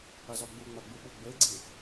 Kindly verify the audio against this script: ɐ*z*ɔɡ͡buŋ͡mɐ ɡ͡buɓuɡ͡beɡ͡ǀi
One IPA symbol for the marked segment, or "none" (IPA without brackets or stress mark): z